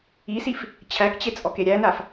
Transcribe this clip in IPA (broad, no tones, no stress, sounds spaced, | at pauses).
i s i f | t͡ɕʰ æ k t͡ɕ e t͡sʼ ɔ k e ɾʲ æ n a f